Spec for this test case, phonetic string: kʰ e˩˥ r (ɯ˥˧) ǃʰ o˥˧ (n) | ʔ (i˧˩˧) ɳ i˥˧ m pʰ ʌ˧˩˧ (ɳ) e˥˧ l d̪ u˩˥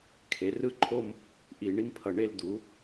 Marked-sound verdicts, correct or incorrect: correct, incorrect: m, correct, correct

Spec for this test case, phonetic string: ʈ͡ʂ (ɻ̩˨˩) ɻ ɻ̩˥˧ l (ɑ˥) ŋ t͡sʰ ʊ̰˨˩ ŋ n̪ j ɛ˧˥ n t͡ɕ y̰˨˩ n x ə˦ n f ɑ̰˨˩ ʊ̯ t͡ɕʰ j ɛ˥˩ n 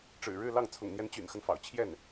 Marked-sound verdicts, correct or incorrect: correct, incorrect: ɑ˥˩

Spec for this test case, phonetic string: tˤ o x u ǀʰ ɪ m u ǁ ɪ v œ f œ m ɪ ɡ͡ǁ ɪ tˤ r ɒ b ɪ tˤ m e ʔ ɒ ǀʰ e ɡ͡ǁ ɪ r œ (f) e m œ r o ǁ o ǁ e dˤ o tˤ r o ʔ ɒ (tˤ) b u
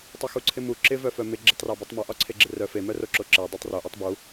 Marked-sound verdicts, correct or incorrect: correct, correct

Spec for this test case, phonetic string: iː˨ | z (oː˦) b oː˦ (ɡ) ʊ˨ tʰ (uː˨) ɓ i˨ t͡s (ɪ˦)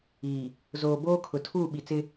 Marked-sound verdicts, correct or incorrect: incorrect: oː˨, incorrect: kʰ, incorrect: uː˦˨, correct

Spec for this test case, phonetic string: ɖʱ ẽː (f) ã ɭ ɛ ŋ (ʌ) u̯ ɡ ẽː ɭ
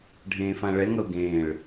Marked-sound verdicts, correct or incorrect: correct, correct

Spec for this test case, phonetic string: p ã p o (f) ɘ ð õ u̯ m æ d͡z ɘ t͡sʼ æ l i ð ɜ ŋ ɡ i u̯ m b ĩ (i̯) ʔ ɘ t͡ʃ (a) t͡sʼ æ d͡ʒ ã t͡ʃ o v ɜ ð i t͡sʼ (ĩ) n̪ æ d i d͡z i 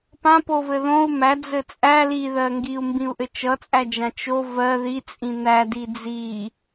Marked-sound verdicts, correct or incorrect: incorrect: v, incorrect: u̯, incorrect: ʌ, correct

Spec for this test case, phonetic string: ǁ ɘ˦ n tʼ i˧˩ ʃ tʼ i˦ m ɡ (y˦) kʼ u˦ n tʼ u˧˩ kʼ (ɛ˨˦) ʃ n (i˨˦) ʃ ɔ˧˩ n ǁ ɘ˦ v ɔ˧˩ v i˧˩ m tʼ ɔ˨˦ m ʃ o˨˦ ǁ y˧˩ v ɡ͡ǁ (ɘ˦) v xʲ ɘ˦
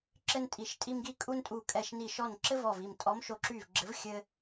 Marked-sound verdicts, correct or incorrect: incorrect: i˦, incorrect: ɛ˧˩, incorrect: i˧˩, incorrect: ɘ˨˦

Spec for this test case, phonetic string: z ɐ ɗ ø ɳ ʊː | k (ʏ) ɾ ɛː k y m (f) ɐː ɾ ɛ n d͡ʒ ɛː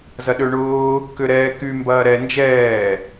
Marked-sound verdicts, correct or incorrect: correct, incorrect: b

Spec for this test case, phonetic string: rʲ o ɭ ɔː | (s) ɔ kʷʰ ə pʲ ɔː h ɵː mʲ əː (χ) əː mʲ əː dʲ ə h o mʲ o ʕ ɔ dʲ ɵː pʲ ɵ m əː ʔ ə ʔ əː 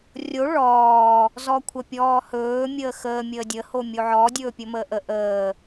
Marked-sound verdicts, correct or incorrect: incorrect: z, incorrect: x

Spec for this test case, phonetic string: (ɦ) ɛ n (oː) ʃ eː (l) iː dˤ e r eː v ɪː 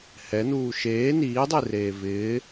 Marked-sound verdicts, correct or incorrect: incorrect: h, incorrect: uː, incorrect: n

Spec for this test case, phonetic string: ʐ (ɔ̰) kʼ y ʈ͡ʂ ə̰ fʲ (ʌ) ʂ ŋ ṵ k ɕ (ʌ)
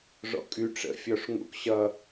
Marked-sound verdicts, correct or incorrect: correct, incorrect: ɔ, correct

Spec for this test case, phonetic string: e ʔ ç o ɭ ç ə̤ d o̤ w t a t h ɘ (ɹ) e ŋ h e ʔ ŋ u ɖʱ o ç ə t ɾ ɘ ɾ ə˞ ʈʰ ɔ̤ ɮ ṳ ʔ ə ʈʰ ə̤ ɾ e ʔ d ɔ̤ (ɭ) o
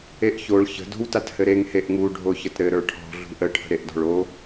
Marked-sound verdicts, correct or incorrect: incorrect: ɾ, correct

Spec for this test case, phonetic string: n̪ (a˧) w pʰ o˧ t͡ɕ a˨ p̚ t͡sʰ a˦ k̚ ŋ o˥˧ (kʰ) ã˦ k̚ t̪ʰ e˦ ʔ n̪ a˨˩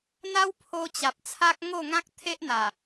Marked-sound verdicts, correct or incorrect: incorrect: a˦, incorrect: ŋ

